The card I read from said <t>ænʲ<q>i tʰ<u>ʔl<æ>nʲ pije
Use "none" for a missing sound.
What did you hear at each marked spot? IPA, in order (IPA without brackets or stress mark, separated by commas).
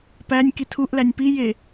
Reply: p, k, u, æ